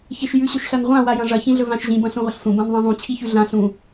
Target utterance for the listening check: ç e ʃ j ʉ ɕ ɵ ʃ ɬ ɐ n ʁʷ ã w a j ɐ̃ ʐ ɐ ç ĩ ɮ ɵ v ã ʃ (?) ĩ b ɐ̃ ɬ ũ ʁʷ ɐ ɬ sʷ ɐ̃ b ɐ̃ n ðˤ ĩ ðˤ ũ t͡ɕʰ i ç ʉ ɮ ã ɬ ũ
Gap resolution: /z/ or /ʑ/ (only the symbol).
ʑ